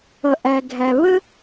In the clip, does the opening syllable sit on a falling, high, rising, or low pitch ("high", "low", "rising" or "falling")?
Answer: low